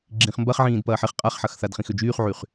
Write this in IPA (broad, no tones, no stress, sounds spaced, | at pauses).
ɡ͡ǁ ĩ χ m b ɐ χ ʕ ĩː d p ɐː ħ ɪ χ qʼ a χ ħ ɐ x θ a d χ ĩ x ø d͡ʒ yː χ ʕ y χ